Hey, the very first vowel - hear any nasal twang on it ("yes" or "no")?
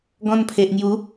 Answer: yes